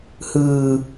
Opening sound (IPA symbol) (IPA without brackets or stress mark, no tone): h